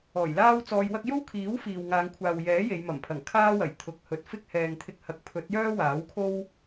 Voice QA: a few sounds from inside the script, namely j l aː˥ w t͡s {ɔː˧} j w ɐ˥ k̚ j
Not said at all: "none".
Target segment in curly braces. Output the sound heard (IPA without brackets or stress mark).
ɔː˧